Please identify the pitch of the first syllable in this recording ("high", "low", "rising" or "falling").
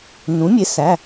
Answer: rising